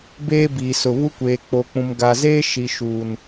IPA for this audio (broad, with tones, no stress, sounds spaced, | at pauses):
b eː˦ b iː˨ s ʊ˨ β u˦ kʷ eː˨ k͡p o˨ k͡p ũ˨ m ɡ a˨ z eː˦ ʃ i˨ ʃ uː˨ n